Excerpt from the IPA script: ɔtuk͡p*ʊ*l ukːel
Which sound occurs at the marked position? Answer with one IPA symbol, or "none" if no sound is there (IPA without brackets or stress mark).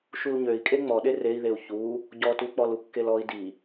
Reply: ɔ